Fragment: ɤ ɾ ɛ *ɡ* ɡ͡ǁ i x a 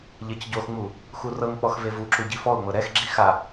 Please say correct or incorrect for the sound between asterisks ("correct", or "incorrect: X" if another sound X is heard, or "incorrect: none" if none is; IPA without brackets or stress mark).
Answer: incorrect: x